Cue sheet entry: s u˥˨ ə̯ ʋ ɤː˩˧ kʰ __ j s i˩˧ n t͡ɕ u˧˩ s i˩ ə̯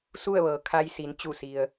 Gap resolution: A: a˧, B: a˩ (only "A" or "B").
A